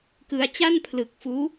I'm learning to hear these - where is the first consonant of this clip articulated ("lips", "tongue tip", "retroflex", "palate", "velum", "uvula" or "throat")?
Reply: velum